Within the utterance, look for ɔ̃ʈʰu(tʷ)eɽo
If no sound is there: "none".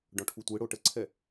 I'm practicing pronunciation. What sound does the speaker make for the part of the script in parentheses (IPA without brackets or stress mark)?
tʷ